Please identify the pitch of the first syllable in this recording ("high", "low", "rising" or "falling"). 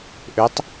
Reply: rising